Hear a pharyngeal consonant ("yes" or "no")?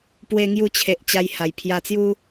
no